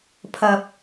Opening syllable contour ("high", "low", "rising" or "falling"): high